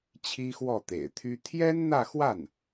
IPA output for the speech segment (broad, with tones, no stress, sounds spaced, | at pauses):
t͡ɕʰ i˥ x w ɔ˥˩ t̪ ḛ˨˩ ɪ̯ t̪ʰ y˥ t̪ʰ j ɛ˥ n n̪ ä˥˧ x w a˥˩ n